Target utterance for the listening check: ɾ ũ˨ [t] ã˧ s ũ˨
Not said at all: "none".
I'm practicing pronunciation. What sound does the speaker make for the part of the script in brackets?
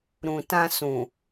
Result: t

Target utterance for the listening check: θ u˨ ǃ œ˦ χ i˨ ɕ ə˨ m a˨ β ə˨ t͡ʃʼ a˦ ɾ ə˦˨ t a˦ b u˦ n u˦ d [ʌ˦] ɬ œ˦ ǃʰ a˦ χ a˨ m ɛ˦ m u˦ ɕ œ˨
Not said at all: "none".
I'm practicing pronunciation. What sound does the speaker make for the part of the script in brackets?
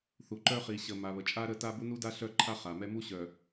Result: a˦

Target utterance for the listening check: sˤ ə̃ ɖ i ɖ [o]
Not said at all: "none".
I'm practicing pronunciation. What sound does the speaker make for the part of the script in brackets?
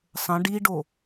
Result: o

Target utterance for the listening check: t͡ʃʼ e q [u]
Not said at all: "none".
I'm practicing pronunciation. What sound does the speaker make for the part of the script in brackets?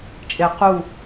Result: u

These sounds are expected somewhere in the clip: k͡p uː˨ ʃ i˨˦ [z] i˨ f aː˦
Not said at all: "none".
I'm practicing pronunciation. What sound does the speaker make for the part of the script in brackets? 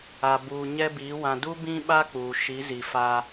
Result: z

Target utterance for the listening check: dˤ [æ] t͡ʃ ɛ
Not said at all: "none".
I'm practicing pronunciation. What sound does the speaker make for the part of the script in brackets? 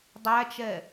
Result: æ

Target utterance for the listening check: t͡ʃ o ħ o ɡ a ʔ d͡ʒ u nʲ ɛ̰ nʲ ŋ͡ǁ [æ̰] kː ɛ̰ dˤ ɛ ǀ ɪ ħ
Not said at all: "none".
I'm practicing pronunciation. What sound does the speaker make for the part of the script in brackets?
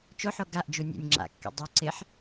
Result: a̰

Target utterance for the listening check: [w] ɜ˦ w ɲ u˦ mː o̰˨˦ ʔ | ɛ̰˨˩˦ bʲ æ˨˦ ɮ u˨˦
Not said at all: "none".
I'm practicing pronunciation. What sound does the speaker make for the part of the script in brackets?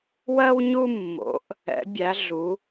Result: w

